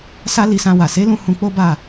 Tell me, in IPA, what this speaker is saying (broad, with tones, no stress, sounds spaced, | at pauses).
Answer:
s a˦ l i˧ s ã˧ w a˨ s e˨˦ l ũ˧ h ũ˧ k͡p o˦ b a˦˨